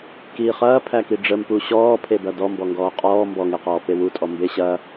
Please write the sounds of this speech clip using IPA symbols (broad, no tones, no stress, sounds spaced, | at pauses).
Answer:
k iː χ ɐː pʰ æ k i ɖ͡ʐ ə m p u ɕ ɔː pʰ e b ɐ d ɔ m b ɔ ŋ ɡ ɔː qʼ ɔː m b ɔ ŋ e q ɔː p e w u tʼ ɔ m b e ɕ ɐ